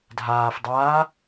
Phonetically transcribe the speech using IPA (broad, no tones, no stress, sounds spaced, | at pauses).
dʱ aː f dˤ aː